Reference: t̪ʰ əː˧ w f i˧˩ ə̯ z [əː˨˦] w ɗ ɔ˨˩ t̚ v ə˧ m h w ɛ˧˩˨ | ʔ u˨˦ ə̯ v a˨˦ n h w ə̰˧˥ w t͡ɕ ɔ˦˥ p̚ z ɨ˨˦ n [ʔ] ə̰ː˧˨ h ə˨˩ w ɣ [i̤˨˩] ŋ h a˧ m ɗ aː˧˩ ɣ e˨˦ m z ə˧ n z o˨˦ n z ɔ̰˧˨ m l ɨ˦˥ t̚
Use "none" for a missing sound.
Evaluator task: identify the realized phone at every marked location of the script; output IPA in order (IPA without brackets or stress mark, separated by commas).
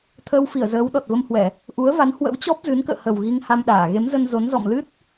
əː˨˦, k, i˧